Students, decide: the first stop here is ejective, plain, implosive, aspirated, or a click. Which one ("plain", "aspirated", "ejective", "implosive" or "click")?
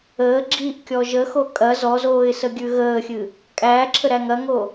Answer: click